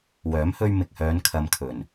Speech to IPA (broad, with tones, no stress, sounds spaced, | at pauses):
w œː˨˥ m h ɵ˧ ɥ m ɪ˨ k̚ h œː˨˧ n kʰ ɐ˨ m kʰ ɵ˨˩ n